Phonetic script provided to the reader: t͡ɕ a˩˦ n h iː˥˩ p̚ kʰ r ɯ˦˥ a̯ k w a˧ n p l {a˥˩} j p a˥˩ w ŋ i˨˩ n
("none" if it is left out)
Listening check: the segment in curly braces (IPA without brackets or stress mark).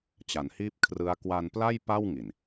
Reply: a˥˩